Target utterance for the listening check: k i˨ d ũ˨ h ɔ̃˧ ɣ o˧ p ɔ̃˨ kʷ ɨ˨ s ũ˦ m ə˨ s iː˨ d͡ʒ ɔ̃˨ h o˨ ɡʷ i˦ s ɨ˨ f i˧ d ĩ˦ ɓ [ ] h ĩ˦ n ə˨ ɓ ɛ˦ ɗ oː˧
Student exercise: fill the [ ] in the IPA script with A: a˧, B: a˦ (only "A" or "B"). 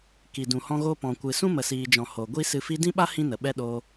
B